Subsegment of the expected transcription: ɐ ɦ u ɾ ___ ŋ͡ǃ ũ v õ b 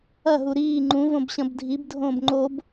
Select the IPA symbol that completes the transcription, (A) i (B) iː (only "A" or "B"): B